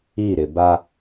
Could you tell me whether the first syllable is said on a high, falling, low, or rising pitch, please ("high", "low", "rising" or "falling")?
falling